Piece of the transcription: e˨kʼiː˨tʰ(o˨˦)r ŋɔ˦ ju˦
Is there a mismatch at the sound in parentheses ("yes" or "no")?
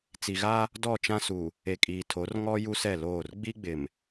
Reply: no